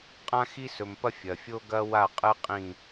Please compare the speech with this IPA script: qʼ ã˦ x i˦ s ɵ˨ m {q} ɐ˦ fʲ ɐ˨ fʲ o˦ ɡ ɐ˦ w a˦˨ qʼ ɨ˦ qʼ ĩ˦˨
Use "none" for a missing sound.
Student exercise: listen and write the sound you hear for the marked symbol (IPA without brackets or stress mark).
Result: p